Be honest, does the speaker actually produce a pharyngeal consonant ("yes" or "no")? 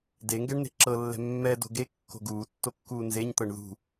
no